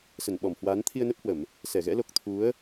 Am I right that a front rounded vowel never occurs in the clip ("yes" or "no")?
yes